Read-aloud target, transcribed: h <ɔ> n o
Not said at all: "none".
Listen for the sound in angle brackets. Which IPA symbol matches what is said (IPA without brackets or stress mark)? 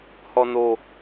ɔ